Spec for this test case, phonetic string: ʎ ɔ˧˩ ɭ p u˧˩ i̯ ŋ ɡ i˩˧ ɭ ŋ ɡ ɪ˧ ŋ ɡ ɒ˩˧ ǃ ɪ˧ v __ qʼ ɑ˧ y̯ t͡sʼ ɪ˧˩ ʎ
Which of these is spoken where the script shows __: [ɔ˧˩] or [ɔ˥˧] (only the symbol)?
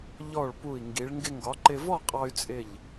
ɔ˥˧